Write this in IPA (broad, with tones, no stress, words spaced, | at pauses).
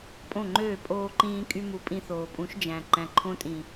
pʼõ˦˨ŋ͡ǃøː˦˨ pʼoː˧ǃĩː˧kʼy˧mu˨ pʼĩ˧θoː˨pʼũ˨˦ʃ d͡ʒæ̃˨ ǃæ̃˨ǃʰõ˧tʼĩ˨